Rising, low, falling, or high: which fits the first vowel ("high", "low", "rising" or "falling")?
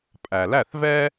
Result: low